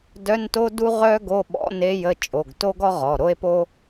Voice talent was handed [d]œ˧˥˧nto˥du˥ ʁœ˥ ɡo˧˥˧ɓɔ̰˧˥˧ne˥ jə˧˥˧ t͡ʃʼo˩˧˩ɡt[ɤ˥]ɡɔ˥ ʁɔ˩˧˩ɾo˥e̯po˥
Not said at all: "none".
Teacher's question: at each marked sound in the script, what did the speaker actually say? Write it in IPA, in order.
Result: d, o˥

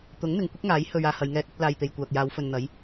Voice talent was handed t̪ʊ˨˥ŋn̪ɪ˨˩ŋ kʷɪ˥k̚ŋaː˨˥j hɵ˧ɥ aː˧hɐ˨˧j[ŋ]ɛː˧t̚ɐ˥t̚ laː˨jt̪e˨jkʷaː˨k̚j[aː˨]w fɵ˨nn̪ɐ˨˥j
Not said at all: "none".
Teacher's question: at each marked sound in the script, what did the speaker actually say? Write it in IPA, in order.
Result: ŋ, aː˨˧

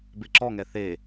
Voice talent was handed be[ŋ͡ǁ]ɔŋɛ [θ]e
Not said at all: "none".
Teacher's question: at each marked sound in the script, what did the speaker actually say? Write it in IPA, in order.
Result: ǁ, θ

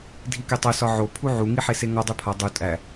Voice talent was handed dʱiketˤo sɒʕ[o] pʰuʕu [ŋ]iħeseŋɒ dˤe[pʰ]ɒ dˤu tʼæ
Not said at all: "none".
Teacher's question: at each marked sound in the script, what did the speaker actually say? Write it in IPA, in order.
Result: o, ŋ, pʰ

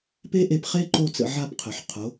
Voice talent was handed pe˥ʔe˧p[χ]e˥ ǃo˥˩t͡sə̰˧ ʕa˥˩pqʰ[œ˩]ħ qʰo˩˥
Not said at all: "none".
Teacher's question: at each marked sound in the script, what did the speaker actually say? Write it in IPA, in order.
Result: χ, œ˩

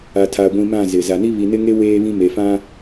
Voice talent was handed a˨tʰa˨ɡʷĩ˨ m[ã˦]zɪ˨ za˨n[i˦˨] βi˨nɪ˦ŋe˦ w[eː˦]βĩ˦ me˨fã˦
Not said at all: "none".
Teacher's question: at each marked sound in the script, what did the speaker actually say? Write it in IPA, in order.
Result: ã˦˨, i˦, eː˦

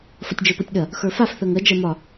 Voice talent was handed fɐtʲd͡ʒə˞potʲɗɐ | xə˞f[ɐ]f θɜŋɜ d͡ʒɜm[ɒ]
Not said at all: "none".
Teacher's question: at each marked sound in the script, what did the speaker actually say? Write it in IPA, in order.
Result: a, ɒ

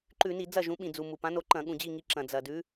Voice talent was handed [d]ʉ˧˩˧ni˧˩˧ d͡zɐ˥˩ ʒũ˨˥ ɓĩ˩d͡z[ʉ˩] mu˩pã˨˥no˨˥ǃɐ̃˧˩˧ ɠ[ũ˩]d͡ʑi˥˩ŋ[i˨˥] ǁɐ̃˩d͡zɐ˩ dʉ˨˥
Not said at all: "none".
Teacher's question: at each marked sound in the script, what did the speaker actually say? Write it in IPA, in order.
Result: ǃ, u˩, ũ˩, i˨˥

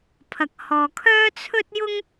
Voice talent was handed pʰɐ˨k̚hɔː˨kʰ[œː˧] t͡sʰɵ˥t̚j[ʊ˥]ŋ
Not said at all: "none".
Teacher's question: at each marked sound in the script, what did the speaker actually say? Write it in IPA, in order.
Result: œː˥, ʊ˥

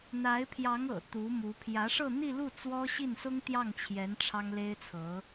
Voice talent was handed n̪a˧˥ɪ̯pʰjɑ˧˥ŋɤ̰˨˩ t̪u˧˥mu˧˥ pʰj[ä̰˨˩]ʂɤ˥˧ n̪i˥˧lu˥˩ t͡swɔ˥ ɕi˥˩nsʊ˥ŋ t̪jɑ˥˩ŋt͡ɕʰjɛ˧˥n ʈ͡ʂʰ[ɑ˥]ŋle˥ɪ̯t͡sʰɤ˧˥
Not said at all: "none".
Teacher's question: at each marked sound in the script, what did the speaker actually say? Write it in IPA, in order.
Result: ä˧˥, ɑ˥

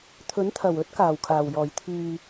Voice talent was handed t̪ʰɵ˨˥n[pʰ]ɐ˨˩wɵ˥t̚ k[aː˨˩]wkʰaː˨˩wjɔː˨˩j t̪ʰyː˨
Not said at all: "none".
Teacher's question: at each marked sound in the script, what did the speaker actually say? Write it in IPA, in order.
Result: t̪ʰ, aː˨˩

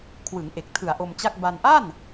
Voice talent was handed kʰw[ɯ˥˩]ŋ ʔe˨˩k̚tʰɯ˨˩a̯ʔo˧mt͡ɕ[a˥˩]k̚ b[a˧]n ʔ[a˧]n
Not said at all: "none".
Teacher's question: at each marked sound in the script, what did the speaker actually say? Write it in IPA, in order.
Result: ɯ˩˦, a˥˩, a˧, a˥˩

